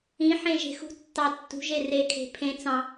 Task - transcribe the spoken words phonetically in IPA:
ĩ ħẽʒe̤xṳtːɑ tːṳʒe rekʰe̤ pʰẽ t͡sɑ̃

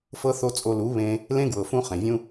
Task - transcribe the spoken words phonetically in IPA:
fɤ˧ θo˦t͡sʼo˧lu˨˦βẽ˧ | lẽ˦ɡwɤ˨fũ˧ χẽ˨vʲũ˦

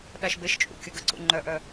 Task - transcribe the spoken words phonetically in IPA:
ɗaʃbeʃt͡ʃʼṵ kʲʌɡəǀṵ ŋ͡ǃœʔœ

